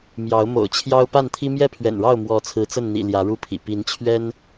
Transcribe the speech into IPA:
m j ɑ˨˦ ʊ̯ m o̰˨˩ ʊ̯ t͡ɕʰ j ɑ˦ ʊ̯ p a˥˨ n t̪ʰ i˦ m j ɛ˥˨ pʰ ɥ ɛ̰˨˩ n ɻ ɑ˥˨ ʊ̯ m w ɔ˨˦ t͡sʰ ɹ̩˨˦ t͡s ə˥˨ n n̪ ḭ˨˩ l j ä˨˦ ɻ u˥˨ pʰ ḭ˨˩ p i˨˦ n t͡ɕʰ ɥ ɛ˦ n

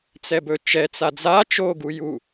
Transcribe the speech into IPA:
t͡s ɛ b ɵ t͡ʃ ɛ t͡s a d͡z a t͡ʃ o ɡ u j u

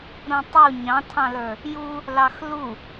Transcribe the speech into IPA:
ɾ ũ tˤ u ɲ ɑ̃ tʰ ɑ̃ l ə˞ | j u | l ɑ x l u

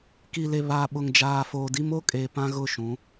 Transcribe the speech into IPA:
k i˨ l e˨ β aː˨ ɓ ʊ˨ ŋ d͡ʒ aː˨ f oː˨ d i˦ m o˦ kʼ eː˨ p ã˦ ɣ ʊ˦˨ ʃ ũ˨˦

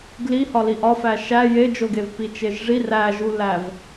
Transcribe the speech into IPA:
ɡ l i h ɒ l i ʔ ɒ f æ ʃ æ j e d͡ʒ o ɡ e v p i t͡ʃ e ʒ ʐ i r æ ʒ u l æ v

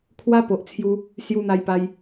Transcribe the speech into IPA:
kʰ w a˧ p o˨ ʔ t͡sʰ j u˧ | s j u˧ n̪ a˧ j p a˧ j

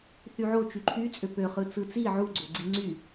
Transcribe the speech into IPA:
θ y ʕ o t͡ʃ y ǃʰ y t͡sʼ ø p ø χ ɯ t͡s ɯ t͡s i ʕ u ɡ͡ǀ o ɡ͡ǀ i ŋ͡ǀ y

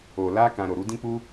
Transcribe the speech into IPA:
o˨ l a˧ k ã˨ ɾ o˨ ɾ u˨˦ d ĩ˦ k͡p u˧

